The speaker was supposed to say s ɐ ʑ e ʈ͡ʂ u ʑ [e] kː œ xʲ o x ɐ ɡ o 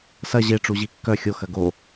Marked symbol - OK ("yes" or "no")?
no